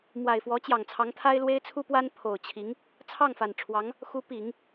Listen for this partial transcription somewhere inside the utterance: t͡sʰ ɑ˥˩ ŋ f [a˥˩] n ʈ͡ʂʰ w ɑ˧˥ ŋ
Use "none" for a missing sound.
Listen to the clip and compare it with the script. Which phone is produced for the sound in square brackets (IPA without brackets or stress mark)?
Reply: a˨˩